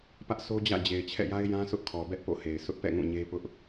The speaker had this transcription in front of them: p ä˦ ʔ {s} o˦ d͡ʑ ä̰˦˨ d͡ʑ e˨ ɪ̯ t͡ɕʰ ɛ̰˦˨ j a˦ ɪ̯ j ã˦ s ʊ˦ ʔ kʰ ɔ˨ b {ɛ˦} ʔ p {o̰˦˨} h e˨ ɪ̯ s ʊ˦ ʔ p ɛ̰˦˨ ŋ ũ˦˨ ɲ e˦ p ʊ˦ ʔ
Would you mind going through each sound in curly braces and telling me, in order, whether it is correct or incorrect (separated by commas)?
correct, correct, correct